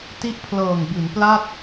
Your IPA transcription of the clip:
t i˦˥ ʔ pʰ l ɤː˨˩ ŋ b i˩˦ n p l a˥˩ t̚

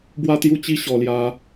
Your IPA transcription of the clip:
b w a˦ t̪ j u˦ t͡ɕ i˦ ɕ ɔ˧ l j a˦

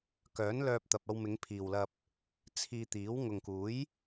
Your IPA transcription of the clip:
k œː˨˥ n l œː˧ p̚ t̪ ɐ˨ p̚ ɐ˧ w m ɪ˨˧ ŋ pʰ iː˨ w l ɐ˧ p̚ | t͡sʰ iː˧ t̪ iː˨˥ w ŋ ʊ˨ ŋ k uː˨˥ j

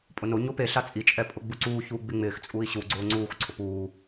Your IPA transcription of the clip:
pʼ ʊ n o ɲ o p e ɬ a t͡sʼ i t͡ʃʼ ɛ pʼ ʊ ɡ͡b u ǀ uː ç uː ɡ͡b ɪ ŋ͡m ɪː x t͡sʼ u i̯ ɕ u ɡ͡ǀ ʊː ŋ͡ǀ uː x ǀʰ ʊ p uː

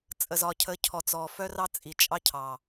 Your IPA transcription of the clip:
t͡sʼ ə˨ z ɒ˨ cʰ ə˨˦ cʰ ɔ˨ t͡s ɔ˨ f œ˦ r ɑ˦ t͡sʼ i˨ t͡ʃʼ ɑ˦ cʰ ɑ˨

